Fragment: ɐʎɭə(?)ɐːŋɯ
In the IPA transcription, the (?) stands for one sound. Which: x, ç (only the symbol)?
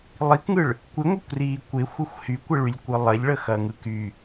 x